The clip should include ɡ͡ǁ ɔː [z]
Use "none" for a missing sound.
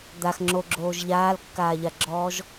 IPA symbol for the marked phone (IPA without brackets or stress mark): ʒ